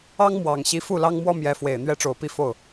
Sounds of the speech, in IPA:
ɑ˥ŋ mwɑ˨˩ŋ ɕi˧˥fu˥˩ lɑ˥ŋ mwɔ˥ mjɛ˧˥fwe˨˩ɪ̯ n̪ɥɛ˥ʈ͡ʂo˨˩ʊ̯pi˥˧ fo˥˩ʊ̯

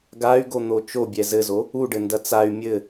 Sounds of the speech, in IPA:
ɡay̯ɡon̪o t͡ʃobʲɛ zɘzo | uɖɘndɐ t͡say̯ mʲɘ

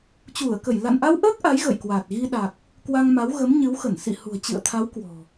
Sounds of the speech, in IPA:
t͡ɕu˧˩ə̯kə˧˩j la̰˧˨nʔa˧wʔəː˦˥k̚ ʔa˨˦jɣə̰˧˨jkwaː˨˩t̚ ɣi˧ɗa˨˩k̚ | kwa˧ŋma˨˦w ɣə˨˦mɲɨ˨˦wxə˧˩n sḭ˧˨hṳ˨˩ə̯t͡ɕɨ̰˧˨ə̯t̪ʰa˨˦w kwɔ̤˨˩

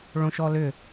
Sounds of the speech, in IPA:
ɭõʃɔlʏ

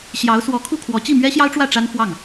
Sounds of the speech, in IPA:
ɕjɑ˧˥ʊ̯swɔ˧˥ kʰu˥˩kʰwɔ˧˥ t͡ɕi˥˩mɥɛ˥ɕjɑ˥ʊ̯ʈ͡ʂwä˥˩ ʈ͡ʂa˥nfwɑ˥˩ŋ

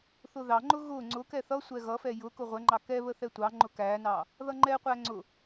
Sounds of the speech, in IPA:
θʊðɑŋ͡ǃʊ ɣʊ ŋ͡ǀʊkɛ θʌsʷɛ ɣʌfɛ jʊ kʊʁʷɛŋ͡ǃɑ kɛβə θɛtʷɑŋ͡ǃʊ kænɑ | ðʌŋ͡ǃɛqʷæ ŋ͡ǀʊ

